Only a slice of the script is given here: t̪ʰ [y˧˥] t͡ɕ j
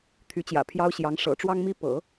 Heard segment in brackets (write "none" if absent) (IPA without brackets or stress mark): y˧˥